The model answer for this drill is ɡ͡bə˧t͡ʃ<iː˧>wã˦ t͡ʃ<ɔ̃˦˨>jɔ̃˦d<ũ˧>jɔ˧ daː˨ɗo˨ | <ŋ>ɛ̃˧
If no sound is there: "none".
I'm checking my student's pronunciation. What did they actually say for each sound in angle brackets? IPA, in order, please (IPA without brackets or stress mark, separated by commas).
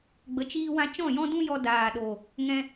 iː˦, ɔ̃˦˨, ũ˦, ŋ